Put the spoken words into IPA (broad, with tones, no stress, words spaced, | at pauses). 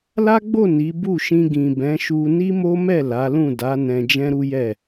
la˦ɡ͡bo˦˨ ni˨˦ bu˦˨ʃĩ˧ ɡĩ˨bɛ̃˨˦ʃu˧ ni˦mo˦mɛ˦˨ la˨˦lũ˦˨ da˨˦ nɛ̃˧d͡ʒɛ̃˦ɾu˦jɛ˦˨